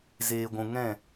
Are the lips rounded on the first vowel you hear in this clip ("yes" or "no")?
no